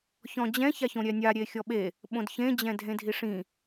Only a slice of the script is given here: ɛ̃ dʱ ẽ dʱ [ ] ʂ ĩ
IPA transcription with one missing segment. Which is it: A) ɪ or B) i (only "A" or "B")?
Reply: B